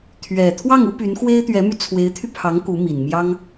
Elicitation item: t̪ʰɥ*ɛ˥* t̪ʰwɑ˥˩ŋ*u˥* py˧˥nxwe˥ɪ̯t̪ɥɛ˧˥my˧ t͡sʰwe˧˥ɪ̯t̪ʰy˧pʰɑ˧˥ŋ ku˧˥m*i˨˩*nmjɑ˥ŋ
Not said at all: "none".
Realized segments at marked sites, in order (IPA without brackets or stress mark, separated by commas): ɛ˨˩, u˥, i˨˩